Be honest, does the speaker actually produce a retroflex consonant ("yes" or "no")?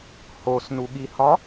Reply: no